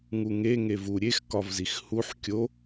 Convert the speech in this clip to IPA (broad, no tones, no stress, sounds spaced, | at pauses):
ŋ u ŋ e ŋ e v u ɾʲ e x k ɒ v z i x h u ħ kʲ o